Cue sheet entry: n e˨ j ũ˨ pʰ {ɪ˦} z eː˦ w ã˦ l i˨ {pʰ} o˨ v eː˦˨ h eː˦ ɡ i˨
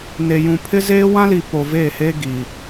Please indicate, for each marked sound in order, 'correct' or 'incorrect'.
correct, incorrect

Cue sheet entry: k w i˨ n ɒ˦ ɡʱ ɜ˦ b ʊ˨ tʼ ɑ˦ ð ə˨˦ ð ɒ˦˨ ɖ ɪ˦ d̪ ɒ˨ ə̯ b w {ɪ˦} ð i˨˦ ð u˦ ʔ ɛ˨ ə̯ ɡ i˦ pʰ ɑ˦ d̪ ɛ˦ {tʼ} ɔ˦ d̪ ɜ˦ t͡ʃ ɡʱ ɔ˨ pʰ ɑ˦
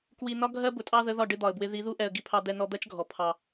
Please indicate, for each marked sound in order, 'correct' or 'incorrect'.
correct, incorrect

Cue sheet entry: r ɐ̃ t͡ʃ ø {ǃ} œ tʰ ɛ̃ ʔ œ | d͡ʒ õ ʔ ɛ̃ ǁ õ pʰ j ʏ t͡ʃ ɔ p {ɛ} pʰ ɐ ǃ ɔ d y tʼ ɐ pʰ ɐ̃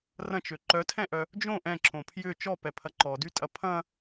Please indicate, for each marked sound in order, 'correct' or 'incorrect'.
correct, correct

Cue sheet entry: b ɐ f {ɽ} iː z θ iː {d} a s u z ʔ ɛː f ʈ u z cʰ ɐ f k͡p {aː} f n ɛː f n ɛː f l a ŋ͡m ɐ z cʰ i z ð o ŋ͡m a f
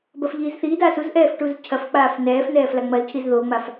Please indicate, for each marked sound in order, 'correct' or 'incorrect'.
incorrect, correct, correct

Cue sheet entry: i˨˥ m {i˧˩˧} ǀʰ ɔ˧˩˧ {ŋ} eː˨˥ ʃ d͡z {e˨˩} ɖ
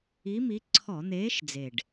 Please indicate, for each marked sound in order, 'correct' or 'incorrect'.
incorrect, incorrect, correct

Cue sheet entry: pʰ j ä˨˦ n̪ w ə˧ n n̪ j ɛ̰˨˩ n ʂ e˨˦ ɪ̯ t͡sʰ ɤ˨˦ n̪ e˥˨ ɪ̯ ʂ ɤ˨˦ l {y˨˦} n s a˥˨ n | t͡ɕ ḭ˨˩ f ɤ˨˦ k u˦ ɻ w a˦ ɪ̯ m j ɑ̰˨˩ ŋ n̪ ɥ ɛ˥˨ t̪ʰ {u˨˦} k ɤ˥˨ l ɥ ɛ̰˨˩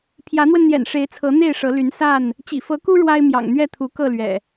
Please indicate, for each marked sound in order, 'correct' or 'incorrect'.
correct, correct

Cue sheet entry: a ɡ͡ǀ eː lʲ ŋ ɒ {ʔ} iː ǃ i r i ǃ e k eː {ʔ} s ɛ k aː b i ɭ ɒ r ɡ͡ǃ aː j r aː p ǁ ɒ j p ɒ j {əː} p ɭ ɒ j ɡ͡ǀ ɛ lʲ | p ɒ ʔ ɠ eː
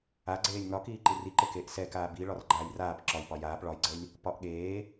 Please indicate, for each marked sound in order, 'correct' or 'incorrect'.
incorrect, correct, incorrect

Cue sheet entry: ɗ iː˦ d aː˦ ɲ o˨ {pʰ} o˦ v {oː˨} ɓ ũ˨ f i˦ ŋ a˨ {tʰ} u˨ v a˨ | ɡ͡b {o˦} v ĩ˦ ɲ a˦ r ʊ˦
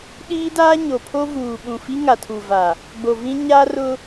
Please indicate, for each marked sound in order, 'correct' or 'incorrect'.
correct, incorrect, correct, incorrect

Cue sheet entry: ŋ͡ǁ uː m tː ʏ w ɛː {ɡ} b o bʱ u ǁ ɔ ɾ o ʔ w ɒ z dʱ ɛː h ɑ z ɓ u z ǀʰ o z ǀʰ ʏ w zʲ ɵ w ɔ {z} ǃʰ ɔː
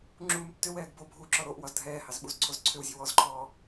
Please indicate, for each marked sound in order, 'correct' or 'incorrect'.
correct, correct

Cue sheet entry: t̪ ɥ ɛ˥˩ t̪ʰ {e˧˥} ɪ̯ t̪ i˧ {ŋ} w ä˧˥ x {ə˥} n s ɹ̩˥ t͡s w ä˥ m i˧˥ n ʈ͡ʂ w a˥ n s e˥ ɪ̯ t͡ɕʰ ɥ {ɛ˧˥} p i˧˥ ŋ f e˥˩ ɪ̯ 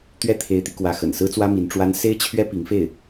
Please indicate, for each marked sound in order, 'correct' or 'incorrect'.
correct, incorrect, incorrect, incorrect

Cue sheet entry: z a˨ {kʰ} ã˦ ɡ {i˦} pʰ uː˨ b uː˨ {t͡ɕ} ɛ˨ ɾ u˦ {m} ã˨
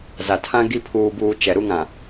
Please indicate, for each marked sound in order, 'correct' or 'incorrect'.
incorrect, correct, incorrect, incorrect

